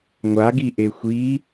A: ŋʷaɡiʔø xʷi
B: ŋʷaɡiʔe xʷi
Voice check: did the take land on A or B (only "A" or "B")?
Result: B